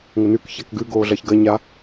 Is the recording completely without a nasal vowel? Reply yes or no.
yes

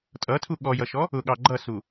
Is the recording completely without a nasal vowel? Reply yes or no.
yes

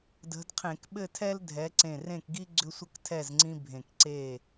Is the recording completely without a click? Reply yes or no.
no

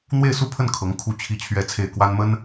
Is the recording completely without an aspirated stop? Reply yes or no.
no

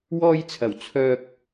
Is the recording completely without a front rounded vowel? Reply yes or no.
no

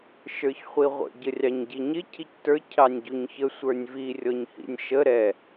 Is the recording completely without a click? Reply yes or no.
yes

